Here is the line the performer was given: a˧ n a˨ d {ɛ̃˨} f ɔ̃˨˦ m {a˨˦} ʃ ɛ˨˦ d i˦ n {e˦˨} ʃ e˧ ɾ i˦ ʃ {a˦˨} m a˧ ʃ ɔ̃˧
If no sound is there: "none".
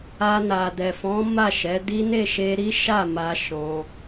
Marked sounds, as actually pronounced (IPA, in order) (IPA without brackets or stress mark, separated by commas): ɛ˨, a˦˨, e˦˨, a˦˨